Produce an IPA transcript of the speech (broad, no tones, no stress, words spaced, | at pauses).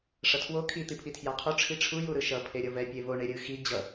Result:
ʂʌtʰwo kʰi t̪ipʰitʰjaqʰo ʈ͡ʂʰiʈ͡ʂʰu juɾɯʃʌ pʰeɾʲʌvɛ pʲevo ɳeɾʲɯxi d͡ʑʌ